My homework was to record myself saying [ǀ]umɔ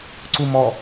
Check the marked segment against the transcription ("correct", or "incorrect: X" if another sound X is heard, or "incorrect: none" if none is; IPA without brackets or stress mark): correct